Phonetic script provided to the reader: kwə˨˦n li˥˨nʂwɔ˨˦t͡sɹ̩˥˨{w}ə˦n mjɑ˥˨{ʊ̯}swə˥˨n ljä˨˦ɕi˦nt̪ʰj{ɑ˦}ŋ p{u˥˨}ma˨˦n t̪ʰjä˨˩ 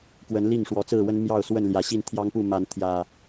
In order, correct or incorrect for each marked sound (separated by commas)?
correct, correct, correct, correct